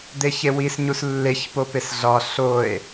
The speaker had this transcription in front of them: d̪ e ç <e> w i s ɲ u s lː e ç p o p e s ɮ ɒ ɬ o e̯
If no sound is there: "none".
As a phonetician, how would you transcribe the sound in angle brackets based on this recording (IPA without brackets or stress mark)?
e